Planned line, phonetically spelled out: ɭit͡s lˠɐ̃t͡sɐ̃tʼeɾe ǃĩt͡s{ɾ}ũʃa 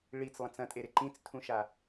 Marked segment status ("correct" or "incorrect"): incorrect